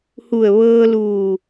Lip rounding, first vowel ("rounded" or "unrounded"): rounded